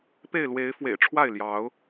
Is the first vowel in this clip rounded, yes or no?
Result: no